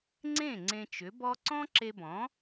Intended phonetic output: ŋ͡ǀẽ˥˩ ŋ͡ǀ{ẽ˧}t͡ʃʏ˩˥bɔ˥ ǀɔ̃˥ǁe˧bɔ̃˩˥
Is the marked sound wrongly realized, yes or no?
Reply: no